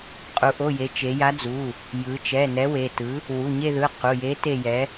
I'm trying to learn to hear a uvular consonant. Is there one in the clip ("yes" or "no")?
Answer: yes